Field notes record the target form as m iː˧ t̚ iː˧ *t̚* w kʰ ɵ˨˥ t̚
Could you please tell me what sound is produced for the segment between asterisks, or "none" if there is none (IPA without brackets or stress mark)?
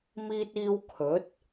none